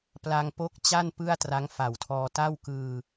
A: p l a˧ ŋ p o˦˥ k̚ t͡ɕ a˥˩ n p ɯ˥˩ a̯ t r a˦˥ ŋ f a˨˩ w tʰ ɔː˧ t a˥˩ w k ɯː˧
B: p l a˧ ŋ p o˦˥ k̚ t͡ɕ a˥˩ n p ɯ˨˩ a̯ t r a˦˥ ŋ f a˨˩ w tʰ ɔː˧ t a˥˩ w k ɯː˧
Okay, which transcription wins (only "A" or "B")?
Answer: A